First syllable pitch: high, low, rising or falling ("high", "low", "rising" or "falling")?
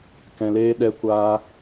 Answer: low